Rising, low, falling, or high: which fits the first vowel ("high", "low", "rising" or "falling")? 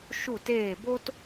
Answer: falling